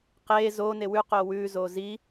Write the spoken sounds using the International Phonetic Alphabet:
q eː z oː n e w ʉ q oː w ʉː z oː z i

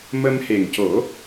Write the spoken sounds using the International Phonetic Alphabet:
m ə˧ m h e˨˩ ŋ c o˨˩˦

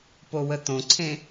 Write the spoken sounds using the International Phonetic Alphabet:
p o w ə t̪ õ ǀʰ ẽ

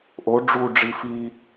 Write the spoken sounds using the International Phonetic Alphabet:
ʔ o ɖ͡ʐ u ɖ͡ʐ i f i

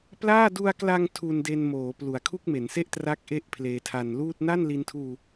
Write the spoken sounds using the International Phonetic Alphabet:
p l aː˥˩ d u˧ a̯ k l a˧ ŋ tʰ u˧ n d e˧ n m oː˩˦ p l u˨˩ a̯ kʰ u˥˩ k̚ m e˩˦ n s e˥˩ ʔ t r a˦˥ k̚ ʔ e˥˩ ʔ pʰ l eː˧ tʰ a˧ n l uː˥˩ t̚ n a˥˩ n l i˧ n tʰ uː˧

